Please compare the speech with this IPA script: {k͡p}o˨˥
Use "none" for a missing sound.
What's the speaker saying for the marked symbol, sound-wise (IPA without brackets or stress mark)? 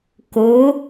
k